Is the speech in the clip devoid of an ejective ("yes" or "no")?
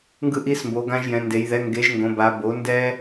yes